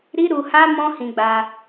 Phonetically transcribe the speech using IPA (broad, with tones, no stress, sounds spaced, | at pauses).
ɾ i˦ ɾ u˧ h a˦ m ɔ̃˦ h ĩ˧ ɡ͡b a˧